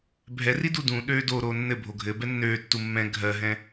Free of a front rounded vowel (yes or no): no